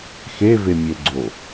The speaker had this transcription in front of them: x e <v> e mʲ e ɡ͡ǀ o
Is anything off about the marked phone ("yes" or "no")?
no